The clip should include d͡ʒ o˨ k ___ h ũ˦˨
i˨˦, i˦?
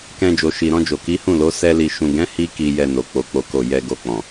i˨˦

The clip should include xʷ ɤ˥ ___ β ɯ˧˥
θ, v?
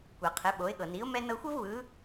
v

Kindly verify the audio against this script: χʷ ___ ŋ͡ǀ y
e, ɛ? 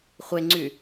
e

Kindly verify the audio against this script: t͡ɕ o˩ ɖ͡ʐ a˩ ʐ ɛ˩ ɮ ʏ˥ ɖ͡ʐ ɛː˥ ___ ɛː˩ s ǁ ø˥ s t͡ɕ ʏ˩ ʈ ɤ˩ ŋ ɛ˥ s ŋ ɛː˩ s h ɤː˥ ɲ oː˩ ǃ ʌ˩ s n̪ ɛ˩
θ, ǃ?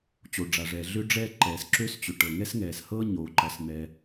ǃ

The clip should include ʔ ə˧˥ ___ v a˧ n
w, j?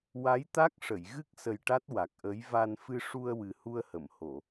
j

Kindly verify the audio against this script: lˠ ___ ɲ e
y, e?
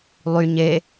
y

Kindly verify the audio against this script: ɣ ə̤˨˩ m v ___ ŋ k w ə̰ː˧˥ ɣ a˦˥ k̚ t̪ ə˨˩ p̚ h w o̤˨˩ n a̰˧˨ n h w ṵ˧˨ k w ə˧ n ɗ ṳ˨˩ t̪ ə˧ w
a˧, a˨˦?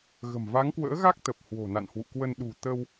a˨˦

